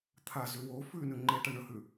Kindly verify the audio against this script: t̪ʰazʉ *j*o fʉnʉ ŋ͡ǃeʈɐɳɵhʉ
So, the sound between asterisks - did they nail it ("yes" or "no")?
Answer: no